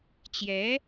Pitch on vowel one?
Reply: rising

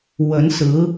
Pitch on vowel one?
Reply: rising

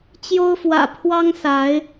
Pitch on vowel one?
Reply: high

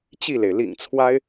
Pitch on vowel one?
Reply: falling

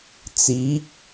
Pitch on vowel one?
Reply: rising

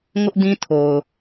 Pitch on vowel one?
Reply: high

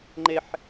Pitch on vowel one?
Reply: high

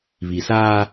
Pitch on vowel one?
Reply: low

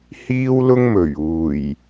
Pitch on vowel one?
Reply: high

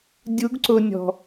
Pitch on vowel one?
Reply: rising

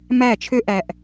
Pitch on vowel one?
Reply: falling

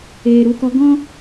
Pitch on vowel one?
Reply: low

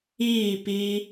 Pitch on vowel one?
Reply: falling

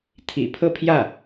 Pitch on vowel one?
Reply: low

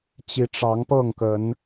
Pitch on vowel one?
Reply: rising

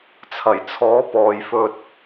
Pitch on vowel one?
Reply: low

